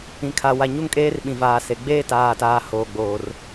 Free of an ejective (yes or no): no